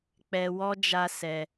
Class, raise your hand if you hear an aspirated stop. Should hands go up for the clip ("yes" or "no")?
no